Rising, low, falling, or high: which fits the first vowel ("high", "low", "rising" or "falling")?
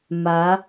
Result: rising